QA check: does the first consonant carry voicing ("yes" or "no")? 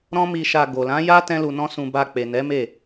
yes